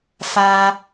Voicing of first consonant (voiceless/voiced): voiceless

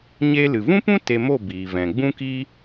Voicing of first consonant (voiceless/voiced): voiced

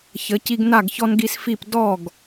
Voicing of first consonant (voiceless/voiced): voiceless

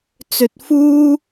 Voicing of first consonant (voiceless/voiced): voiceless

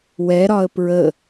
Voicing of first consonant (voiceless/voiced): voiced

